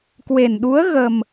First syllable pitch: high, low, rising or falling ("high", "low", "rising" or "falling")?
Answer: low